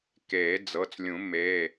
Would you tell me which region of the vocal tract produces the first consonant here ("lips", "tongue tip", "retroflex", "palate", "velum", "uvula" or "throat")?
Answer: velum